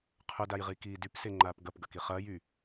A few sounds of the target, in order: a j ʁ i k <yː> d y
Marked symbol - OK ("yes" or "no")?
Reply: no